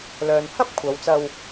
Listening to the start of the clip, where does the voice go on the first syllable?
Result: low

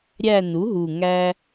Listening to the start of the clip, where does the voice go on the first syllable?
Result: falling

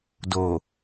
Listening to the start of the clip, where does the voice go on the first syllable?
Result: low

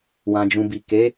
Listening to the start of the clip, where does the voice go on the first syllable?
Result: low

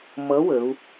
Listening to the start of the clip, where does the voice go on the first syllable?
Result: rising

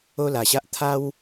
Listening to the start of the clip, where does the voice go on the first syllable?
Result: high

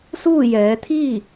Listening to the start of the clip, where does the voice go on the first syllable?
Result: falling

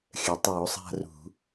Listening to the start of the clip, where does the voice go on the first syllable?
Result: low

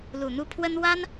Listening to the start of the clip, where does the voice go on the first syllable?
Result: low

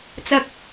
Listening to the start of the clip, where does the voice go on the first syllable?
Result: high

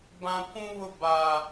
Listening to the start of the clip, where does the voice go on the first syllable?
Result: high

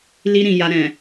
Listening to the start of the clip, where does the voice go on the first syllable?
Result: high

